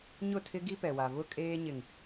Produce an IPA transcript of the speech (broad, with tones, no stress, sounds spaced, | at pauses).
ɲ ʊ˦˨ tʰ ɪ˦ ɡ i˦ p ɛ˨ w a˨ v ʊ˦ kʼ eː˦ ɲ ɪ˨ ŋ